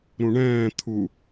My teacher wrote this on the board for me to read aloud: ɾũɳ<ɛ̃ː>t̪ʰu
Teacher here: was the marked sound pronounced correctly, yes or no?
yes